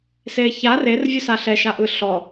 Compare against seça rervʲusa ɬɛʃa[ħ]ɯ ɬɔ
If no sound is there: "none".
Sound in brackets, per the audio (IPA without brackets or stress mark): ʔ